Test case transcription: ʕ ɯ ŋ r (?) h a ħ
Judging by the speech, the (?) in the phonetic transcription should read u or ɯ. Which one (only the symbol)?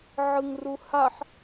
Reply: u